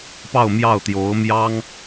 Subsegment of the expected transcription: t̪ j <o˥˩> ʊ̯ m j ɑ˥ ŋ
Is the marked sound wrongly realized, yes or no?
yes